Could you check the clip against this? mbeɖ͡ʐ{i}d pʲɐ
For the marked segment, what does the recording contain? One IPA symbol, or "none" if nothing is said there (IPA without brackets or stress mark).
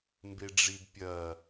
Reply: i